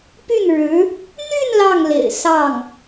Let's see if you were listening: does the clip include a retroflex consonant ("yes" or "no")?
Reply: yes